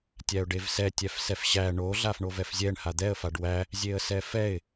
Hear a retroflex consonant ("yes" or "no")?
yes